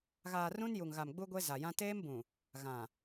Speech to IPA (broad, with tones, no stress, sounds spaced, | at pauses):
ɣ aː˨ r ũ˦ n j u˨ ŋ ɣ a˨ m ɡ͡b u˦ ɡʷ e˦ z a˨ j ã˦ t eː˦ m b ũ˨ | ɣ ã˨